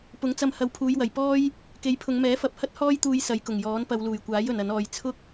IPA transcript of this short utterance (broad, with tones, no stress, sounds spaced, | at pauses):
p ʊ˨˥ ŋ t͡s ɐ˧ m h ɐ˨ w pʰ uː˨˧ j w ɐ˨˩ j p ɔː˥ j | k e˨˥ j pʰ ʊ˨˧ ŋ m ɛː˨˥ f ɐ˨˥ p̚ h ɐ˥ t̚ h ɔː˥ j t̪ uː˧ j s ɐ˨˧ j k ʊ˨˩ ŋ j ɔː˨˥ n p ɐ˨˧ w l uː˨˩ j kʷ aː˨˥ j ɵ˨ n ɐ˨˥ n ɔː˧ j t͡sʰ ʊ˥ k̚